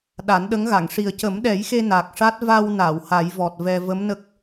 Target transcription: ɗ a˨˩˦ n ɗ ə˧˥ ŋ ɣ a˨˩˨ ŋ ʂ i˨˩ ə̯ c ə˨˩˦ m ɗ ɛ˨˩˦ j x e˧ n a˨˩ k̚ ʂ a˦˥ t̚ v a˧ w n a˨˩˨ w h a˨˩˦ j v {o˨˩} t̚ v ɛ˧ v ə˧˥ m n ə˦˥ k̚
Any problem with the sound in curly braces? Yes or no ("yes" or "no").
yes